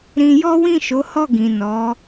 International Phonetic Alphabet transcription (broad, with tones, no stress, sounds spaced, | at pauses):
ɾ ĩ˧ j ɔ˦ w ĩ˦˨ ʃ o˨˦ h ɔ˦˨ ɡ ĩ˨ n ɔ˨˦